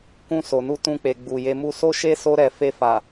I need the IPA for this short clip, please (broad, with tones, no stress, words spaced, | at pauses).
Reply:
kũ˧so˨nu˧ tũ˧k͡pe˨ ɡ͡bu˨je˧ mu˧so˦ʃe˦ so˧ɾɛ˨ fe˧fa˨